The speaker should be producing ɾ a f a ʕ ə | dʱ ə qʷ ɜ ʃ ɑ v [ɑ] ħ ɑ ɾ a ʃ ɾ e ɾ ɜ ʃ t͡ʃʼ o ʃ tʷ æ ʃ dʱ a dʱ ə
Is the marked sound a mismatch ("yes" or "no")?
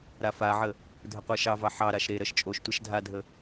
no